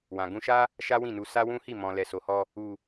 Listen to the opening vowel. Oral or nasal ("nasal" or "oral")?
nasal